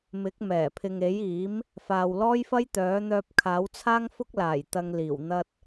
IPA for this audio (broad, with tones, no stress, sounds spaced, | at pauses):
m ɪ˨˥ k̚ m ɛː˨˩ pʰ ɪ˨ ŋ e˨˥ j iː˨˥ m | f aː˨ w l ɔː˥ j f ɐ˥ j t̪ œː˨˥ n̪ œː˧ p̚ kʰ aː˨˥ w t͡sʰ aː˥ ŋ f ʊ˥ k̚ l aː˨˩ j t̪ ɐ˧ ŋ l iː˨˩ w n̪ ɐ˧ t̚